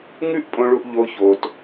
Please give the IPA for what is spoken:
ŋʉ˦ʔpʼõ˧ɭu˧ʔ ʎo˧ ço˧t

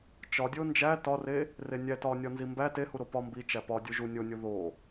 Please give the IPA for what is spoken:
t͡ʃɒdʲo nd͡ʒæ tɒre | renʲæ tɒnʲɒ nzimbæ tehuɾo pɒ mbit͡ʃæ pɒ dʲuʒu nʲonʲu ðo

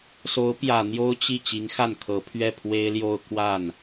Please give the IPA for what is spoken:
so˧˥ʊ̯pjä˨˩ n̪jo˥ʊ̯t͡ɕi˥˩ t͡ɕi˧˥ŋxa˥˩nkʰɤ˧˥pʰɥɛ˥˩ pʰwe˥ɪ̯ljo˥˧ʊ̯ kwa˥˩n

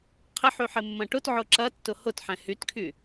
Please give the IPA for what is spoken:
qʰɪħy ħɪmːɐ̃ʈʊtʕʊ ǁɐ tːʊhʊtħɛ̃ hytkʰy

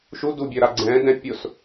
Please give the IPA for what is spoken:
ʃudubʲœɾa ɡ͡ǀɛ̃dɛ̃ pʲʊs

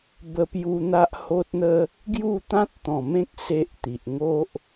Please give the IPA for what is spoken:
bə˧pju˧n̪a˦ʔ ho˦t̚n̪ə˦ | ɡju˥˧t̪ã˦t̚t̪ɔ̃˨˩mẽ˦k̚ se˦ʔt̪i˨ʔ ŋo˦ʔ

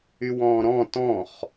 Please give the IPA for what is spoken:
ywɔ̃ːɾɔ̃ tɔ̃χ

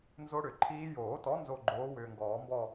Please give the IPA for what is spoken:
nzo˦˥ɽʏ˨˩˦ǃʰiː˦˥ joː˨˩˦tɔ˨˥ nzo˦˨ɡ͡ǃoː˨˥wʏː˨ŋɡɔː˨˩˦ mbɔ˦˨

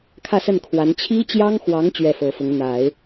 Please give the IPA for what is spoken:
kʰä˥˧sə˥˩n kʰwa˧˥n t͡ɕʰi˥t͡ɕjɑ˥ŋxwɑ˧˥ŋ t͡ɕɥɛ˥˩fɤ˧˥fʊ˧˥ŋ n̪a˨˩˦ɪ̯

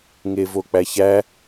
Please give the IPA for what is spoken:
ŋevok͡pæçæ

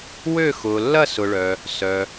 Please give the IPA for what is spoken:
wø˥˧ xʊː˨lːɐ˥˧sʊ˨ɭœ˨ | sœ˨

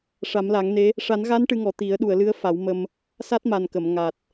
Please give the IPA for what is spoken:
ʂa˨˩˦mla˨˩˦ŋne˧˥ | ʂa˨˩˦nɣa˧˥n ʈɨ˧ŋɔ˨˩ t̪i˨˩˦ə̯ ɗu˨˩˨ə̯lɨ˧˥ə̯fa˨˩˦wmə˧m | sa˦˥t̚ma˨˩nkə˨˩˨m ŋa˨˩t̚

